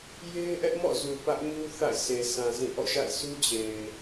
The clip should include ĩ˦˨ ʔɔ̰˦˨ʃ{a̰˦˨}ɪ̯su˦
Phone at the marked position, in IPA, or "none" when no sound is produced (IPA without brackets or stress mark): a̰˦˨